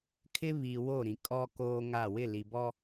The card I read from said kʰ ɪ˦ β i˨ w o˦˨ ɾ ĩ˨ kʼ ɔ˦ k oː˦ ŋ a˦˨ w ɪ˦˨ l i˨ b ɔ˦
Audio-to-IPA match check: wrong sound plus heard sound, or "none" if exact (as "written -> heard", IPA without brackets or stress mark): none